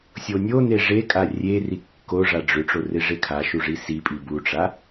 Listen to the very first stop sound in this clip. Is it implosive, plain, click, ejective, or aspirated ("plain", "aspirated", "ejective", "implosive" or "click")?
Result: ejective